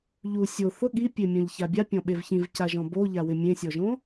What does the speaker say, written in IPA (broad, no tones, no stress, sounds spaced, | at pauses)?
ʎ u sʲ o θ ʊ ɠ i pʲ e mʲ ɔ̃ ʎ ç a bʲ a pʲ ɔ̃ ɓ e v ç ĩ v c a ʒ ɔ̃ b o ʎ a w ɪ mʲ ẽ sʲ ɔ ʒ õ